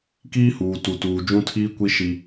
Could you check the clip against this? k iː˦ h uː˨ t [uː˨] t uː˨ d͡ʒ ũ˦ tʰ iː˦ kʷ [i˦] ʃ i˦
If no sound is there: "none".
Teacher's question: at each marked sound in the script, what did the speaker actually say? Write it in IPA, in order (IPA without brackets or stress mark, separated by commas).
u˨, i˦